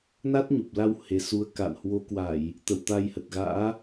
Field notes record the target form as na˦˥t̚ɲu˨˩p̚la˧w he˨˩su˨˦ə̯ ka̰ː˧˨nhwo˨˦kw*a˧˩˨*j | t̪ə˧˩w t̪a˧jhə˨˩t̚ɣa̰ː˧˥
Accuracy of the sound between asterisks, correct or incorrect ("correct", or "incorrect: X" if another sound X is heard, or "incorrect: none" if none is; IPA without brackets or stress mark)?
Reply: correct